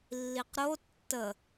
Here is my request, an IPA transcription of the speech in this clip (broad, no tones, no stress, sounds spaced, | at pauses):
lː i q ɾ o tː ə